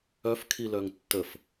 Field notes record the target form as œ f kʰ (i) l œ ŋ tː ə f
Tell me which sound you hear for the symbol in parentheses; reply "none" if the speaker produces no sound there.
i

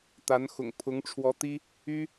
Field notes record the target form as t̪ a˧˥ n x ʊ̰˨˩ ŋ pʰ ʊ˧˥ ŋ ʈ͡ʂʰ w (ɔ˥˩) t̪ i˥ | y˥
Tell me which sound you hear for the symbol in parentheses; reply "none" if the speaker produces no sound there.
ɔ˧˥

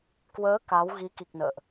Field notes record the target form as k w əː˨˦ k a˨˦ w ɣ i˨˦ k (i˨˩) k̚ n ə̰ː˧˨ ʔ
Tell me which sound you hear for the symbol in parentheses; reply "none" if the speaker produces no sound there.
i˨˩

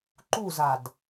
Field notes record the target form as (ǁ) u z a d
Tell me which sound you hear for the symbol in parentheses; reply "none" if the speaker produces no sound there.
ǃ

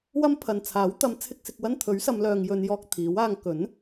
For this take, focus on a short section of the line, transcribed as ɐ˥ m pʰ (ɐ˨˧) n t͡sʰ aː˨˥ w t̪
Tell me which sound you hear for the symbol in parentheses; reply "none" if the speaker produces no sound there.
ɐ˨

